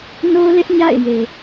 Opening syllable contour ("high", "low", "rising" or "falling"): high